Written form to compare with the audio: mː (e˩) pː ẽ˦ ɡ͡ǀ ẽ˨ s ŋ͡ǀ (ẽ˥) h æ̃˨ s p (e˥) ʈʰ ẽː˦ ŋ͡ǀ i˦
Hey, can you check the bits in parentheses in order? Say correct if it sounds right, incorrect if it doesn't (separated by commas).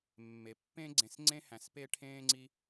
correct, correct, correct